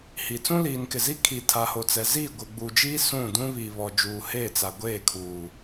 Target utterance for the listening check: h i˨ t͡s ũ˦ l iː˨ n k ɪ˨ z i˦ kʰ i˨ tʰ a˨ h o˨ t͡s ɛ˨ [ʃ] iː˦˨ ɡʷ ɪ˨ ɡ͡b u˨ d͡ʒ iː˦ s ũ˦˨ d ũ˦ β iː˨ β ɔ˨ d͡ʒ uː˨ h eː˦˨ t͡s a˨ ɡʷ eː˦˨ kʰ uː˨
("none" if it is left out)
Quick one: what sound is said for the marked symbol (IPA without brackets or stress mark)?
z